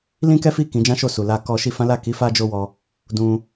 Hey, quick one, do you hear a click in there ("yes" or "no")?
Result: no